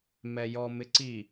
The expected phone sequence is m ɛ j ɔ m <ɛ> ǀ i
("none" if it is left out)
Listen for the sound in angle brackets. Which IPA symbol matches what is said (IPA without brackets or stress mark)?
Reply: ɪ